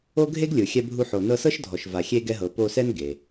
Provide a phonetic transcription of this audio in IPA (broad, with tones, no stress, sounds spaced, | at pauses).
o˥ ɡʱ e˥ ɡ lʲ ɯ˩ xʲ ɛ˧ bʱ u˧ ħ o˩ n ɤ˧ s ɤ˥ ʃ dʱ ɔ˩ ʃ v a˩ xʲ e˧ ɡ ɛ˧ ɦ ɤ˩ p o˧ s ɛ˥ n ɡ e˩